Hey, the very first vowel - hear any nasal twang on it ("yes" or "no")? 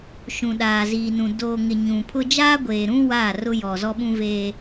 yes